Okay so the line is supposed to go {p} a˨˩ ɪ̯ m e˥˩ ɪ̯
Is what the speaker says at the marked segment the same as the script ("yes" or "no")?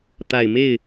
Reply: no